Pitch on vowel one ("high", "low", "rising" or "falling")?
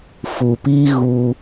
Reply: low